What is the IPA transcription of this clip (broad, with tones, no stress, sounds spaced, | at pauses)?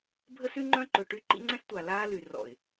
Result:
bʱ ə˦ s y˦ ŋ͡ǃ œ̃˦ ǃ ø˨ ʈ y˦ ǃ ḭ˦ ŋ͡ǀ ɛ̃˦ s tʷ a˨ l aː˦ l y˨ r ɔ̰˨ ɪ̯